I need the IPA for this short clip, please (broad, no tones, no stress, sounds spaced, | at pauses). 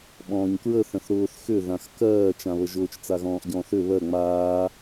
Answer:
ɓ ɔ̃ː ɲ k ɹ ə θ ə̃ θ ɾ ʊː θ x ʏ ð ã x k ɜː t͡ʃ ã β ə ʒ ʊː t͡ʃ t͡s a ɣ ɔ̃ː ʔ ɟ ɔ̃ː θ ʏ β ɜ ŋ͡m aː